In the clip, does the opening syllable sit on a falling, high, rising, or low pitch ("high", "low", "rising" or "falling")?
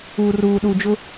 low